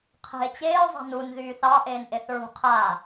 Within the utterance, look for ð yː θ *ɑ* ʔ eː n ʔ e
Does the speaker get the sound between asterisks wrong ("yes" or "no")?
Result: no